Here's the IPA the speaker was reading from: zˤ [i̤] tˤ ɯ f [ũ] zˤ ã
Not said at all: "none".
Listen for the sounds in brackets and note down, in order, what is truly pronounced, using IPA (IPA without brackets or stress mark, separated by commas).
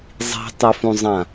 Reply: i̤, ũ